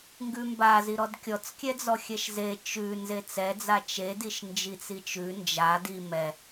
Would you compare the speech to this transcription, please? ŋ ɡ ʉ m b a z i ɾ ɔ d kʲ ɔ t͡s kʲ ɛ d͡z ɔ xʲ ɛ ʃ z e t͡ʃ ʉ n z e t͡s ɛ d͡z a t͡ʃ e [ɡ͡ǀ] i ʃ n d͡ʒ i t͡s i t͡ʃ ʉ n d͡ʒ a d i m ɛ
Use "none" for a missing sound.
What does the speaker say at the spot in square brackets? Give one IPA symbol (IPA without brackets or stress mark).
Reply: d